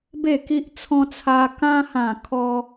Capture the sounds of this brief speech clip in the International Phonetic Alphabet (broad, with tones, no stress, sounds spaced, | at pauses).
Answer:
b e˥˧ k i˦ ʔ t͡sʰ ɔ̃˦ t͡sʰ a˧ k ã˧ h ã˨˩ kʰ ɔ˧